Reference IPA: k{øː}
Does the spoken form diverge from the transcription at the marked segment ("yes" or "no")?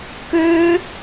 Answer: no